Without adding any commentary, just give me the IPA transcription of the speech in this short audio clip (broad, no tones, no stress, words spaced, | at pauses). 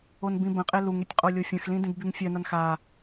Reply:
onbĩbə̃qʼe luŋetʲ qʼolʲofʲə̃xlĩ dĩdbyŋfʲœnan xa